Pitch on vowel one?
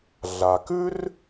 low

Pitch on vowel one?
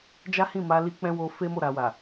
high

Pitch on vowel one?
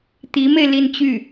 rising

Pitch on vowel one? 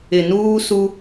low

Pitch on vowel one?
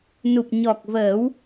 low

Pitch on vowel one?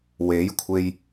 rising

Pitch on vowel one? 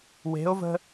rising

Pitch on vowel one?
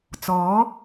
rising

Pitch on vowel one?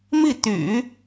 falling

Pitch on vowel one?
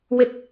high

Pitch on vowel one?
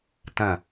falling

